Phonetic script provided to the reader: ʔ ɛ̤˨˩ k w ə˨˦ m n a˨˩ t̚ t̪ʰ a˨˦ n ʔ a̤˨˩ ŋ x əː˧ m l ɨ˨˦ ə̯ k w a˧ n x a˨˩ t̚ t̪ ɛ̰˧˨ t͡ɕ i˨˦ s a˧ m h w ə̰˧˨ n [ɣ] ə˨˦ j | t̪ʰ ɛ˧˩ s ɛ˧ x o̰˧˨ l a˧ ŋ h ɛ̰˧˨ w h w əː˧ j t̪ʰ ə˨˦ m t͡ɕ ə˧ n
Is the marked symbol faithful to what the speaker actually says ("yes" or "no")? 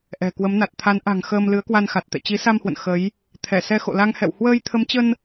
no